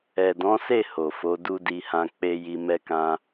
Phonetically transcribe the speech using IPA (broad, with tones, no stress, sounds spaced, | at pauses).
ɛ˨ d ɔ̃˨˦ s e˦˨ h o˨ f o˨˦ d u˦ d i˧ h ã˧ k͡p e˦ j i˧ m ɛ˦ k ã˦